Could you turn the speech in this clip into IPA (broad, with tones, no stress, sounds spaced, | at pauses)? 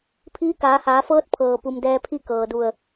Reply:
pʰ iː˧˥ k aː˩˧ h aː˩˧ f ɤː˧˥ t̚ pʰ ɤː˩ p u˩ m d ɛː˧ pʰ i˥˨ k ɤː˩ d u˧˩ ə̯